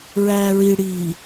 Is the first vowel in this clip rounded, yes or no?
no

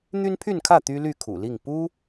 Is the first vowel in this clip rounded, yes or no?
yes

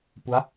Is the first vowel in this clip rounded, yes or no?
yes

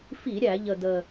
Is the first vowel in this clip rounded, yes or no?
no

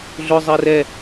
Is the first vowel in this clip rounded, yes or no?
yes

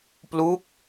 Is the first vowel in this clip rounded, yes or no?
yes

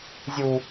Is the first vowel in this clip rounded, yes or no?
yes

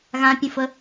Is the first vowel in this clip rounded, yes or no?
no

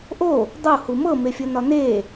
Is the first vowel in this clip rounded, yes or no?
yes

